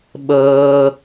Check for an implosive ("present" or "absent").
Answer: present